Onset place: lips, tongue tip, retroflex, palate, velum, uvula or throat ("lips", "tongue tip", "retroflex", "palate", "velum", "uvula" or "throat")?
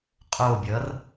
uvula